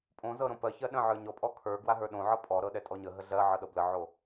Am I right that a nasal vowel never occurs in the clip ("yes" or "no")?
no